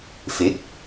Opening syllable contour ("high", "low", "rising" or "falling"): rising